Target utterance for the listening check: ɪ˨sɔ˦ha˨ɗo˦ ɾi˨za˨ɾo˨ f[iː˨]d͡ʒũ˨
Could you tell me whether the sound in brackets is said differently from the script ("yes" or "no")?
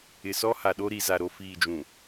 no